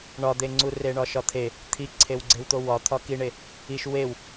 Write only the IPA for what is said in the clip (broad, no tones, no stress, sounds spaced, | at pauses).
ɳ ɒ d̪ e ŋ͡ǀ u r e ɳ ɒ ʃ ɒ t̪ʰ e | t̪ʰ i ǀʰ e w ɡ͡ǀ e w t̪ o w ɒ t̪ʰ ɒ k i ɳ e | i ʃ w e w